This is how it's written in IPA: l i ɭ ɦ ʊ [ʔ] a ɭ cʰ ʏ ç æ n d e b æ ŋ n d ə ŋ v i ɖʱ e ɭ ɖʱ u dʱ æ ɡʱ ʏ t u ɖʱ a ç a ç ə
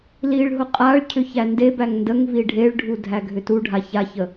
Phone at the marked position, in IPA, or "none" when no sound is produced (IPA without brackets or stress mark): qʼ